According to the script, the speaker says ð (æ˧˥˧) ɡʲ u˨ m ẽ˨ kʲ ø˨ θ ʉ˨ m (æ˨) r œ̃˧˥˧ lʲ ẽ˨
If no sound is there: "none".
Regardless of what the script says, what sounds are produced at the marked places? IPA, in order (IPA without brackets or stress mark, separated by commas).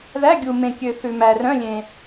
æ˧˥˧, æ˨